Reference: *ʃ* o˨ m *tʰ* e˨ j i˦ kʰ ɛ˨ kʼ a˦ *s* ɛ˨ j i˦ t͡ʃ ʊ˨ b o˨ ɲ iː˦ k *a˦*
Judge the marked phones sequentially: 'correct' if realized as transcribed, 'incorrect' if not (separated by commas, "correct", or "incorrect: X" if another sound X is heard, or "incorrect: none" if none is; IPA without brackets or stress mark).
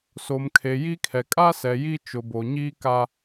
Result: incorrect: s, incorrect: kʰ, correct, correct